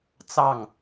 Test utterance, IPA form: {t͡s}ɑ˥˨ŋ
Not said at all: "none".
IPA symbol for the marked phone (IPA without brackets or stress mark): t͡s